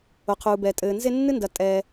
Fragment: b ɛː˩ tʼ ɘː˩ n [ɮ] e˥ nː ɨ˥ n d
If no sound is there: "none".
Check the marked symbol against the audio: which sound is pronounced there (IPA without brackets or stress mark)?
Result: z